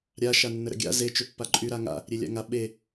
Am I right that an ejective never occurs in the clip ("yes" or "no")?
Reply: no